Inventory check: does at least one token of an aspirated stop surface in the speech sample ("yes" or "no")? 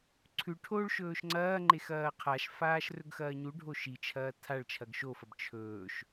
yes